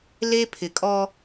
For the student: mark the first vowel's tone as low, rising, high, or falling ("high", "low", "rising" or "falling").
high